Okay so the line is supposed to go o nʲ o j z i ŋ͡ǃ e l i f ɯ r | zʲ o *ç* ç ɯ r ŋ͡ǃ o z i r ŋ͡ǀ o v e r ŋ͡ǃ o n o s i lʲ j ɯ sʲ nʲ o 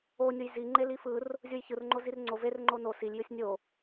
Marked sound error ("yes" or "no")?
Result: yes